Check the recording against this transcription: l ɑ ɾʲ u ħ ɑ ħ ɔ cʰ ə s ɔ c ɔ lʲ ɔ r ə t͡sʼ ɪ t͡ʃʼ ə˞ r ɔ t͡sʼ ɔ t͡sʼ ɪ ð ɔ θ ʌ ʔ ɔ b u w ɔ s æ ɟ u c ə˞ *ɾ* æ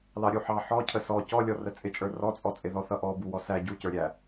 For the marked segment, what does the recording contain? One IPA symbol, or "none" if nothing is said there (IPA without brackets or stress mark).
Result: ɾʲ